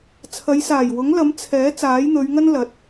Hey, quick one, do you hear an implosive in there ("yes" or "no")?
no